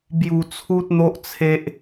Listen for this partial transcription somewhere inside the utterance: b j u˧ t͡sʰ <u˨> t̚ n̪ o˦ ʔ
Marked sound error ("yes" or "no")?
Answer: yes